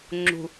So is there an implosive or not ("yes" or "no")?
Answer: no